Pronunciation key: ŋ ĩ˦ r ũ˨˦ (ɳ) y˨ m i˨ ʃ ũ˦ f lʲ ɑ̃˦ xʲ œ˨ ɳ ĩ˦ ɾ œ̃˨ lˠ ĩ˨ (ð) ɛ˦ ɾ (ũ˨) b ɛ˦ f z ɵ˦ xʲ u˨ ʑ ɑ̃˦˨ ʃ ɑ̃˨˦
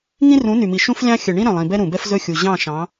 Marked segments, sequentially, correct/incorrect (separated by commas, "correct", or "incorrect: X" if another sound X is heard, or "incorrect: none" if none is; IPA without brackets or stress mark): incorrect: n, incorrect: b, correct